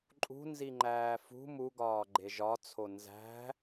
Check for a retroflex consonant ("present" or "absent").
absent